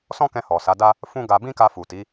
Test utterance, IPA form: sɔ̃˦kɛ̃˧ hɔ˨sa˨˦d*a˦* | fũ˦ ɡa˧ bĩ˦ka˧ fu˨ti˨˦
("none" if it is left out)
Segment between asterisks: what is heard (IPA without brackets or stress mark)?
a˦